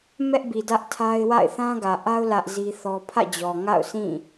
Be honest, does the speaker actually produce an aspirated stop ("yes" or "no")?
yes